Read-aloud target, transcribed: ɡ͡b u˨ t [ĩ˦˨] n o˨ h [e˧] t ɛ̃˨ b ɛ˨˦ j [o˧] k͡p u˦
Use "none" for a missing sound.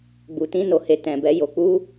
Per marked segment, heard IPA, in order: ĩ˧, e˨, o˧

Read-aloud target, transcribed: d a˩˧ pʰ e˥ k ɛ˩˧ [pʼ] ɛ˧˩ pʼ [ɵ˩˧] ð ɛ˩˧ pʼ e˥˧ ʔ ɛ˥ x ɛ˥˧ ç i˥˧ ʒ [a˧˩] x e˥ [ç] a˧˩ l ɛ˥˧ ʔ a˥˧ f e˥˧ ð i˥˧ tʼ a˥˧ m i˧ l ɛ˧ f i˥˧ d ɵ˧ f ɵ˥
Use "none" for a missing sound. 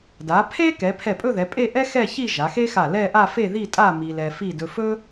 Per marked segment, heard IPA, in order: pʰ, ɵ˥˧, a˩˧, x

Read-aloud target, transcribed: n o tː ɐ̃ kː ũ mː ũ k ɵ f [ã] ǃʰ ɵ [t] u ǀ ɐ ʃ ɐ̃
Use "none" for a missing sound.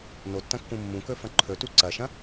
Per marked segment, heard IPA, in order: ɐ̃, t

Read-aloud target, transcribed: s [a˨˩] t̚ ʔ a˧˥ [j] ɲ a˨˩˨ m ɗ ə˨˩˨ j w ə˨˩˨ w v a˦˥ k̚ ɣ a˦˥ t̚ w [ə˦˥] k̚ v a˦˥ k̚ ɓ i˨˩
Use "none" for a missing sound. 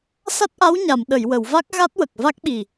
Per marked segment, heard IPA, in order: a˦˥, w, ə˨˩

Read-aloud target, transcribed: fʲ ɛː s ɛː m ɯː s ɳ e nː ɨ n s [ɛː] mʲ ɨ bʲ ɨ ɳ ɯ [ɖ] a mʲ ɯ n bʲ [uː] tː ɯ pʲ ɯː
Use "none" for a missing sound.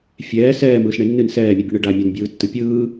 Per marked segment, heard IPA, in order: ɛː, ɖ, ɯː

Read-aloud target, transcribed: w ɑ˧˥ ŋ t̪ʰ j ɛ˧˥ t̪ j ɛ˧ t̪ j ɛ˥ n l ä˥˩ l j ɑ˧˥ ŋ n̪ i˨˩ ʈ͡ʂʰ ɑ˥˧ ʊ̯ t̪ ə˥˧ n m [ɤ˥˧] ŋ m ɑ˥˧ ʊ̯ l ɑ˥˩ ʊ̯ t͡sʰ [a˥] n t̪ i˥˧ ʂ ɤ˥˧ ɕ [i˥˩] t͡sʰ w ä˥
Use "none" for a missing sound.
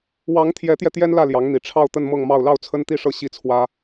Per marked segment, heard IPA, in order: ɤ˥˧, ə˥, i˥˩

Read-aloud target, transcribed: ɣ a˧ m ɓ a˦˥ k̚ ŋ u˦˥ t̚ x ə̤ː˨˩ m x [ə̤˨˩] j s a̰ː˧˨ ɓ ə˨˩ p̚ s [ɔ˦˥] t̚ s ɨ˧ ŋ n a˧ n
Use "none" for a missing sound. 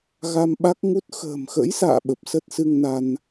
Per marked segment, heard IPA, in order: ə̰˧˥, ə˦˥

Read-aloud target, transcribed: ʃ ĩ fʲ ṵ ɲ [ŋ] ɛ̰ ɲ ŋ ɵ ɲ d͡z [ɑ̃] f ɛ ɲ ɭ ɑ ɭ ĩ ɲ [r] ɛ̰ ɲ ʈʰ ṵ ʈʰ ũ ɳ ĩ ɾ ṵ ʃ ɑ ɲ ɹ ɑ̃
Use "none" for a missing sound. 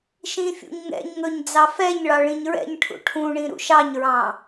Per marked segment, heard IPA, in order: ŋ, ɑ, ɹ

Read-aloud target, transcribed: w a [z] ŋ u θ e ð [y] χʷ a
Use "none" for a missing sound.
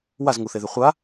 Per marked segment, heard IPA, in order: z, y

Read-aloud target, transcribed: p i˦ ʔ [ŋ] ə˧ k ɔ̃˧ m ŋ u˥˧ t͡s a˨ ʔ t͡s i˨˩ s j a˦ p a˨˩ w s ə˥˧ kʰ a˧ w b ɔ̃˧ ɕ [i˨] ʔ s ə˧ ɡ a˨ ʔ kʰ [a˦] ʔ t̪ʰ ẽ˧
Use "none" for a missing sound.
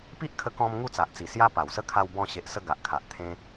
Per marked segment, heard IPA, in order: kʰ, e˨, a˨

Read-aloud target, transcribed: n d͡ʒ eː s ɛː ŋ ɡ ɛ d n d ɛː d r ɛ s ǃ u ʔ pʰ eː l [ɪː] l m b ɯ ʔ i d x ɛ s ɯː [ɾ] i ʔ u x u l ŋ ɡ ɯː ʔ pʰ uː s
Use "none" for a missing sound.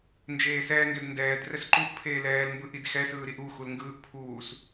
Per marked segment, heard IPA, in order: ɛː, ɾ

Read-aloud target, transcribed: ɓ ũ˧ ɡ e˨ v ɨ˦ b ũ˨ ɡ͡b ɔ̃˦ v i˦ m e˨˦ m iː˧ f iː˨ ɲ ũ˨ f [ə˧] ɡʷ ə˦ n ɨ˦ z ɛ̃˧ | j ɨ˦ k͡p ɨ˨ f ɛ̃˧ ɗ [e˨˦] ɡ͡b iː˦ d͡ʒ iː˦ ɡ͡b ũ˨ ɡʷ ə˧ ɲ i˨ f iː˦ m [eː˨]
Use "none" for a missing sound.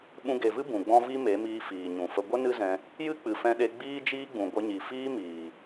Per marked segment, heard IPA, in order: ə˧, e˧, iː˨

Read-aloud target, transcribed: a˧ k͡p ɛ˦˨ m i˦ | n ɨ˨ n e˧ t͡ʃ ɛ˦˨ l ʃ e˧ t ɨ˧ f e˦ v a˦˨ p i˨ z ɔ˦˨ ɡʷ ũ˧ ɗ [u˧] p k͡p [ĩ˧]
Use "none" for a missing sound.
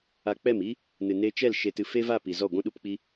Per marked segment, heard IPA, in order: u˧, i˧

